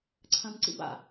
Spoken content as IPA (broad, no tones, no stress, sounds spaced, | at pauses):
ǀʰ ɐ̃ m ǀ ḭ b a̰